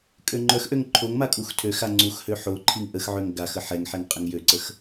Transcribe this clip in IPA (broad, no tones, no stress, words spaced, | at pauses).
kʼøŋ͡ǃœxʔøŋ ǃʰoŋma kʼuxtʰøxa ŋ͡ǀuxhø ħoǃʰiŋ ʔəxʕøŋ ɡax əħɛŋħɛŋ qʼəŋjøǀəx